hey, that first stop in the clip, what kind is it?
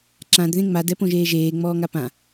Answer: click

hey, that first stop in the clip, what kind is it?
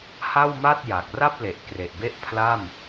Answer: plain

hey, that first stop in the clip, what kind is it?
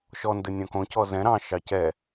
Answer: plain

